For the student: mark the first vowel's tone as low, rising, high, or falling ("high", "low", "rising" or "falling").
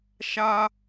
high